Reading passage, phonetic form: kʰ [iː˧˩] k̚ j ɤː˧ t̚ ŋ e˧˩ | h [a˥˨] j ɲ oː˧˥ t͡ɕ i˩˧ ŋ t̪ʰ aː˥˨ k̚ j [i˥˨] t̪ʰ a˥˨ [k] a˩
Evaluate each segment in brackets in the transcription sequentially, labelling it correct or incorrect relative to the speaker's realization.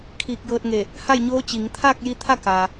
correct, correct, incorrect, correct

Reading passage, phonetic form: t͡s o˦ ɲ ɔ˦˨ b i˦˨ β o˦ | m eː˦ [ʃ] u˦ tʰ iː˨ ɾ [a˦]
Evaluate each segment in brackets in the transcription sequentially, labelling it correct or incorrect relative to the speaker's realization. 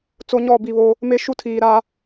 correct, correct

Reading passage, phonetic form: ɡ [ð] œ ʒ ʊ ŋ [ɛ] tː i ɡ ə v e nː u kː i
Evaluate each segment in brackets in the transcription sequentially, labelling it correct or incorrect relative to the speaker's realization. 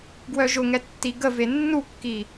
incorrect, correct

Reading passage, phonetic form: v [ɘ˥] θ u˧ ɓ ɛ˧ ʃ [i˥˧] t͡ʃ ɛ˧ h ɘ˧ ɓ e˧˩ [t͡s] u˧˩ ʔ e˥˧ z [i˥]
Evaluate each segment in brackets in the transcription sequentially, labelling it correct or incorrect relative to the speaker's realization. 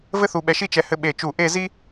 correct, correct, incorrect, correct

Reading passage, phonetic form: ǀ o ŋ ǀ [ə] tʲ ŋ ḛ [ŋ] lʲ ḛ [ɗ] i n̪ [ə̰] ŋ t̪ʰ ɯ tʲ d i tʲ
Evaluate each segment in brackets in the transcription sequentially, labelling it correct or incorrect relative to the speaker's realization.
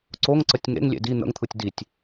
correct, correct, incorrect, correct

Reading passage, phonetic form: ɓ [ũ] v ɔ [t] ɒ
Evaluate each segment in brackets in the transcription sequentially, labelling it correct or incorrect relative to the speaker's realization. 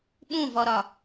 correct, incorrect

